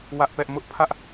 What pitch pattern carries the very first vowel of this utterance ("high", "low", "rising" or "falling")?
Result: high